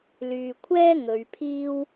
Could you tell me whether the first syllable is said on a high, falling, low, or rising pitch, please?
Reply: low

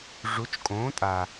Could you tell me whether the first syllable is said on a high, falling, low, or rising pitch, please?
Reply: rising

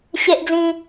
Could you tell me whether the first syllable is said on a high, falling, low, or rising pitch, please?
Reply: high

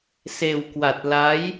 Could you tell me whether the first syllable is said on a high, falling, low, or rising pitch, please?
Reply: low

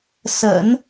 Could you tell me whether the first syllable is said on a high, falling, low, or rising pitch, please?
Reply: low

